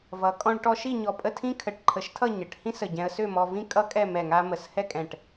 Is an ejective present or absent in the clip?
present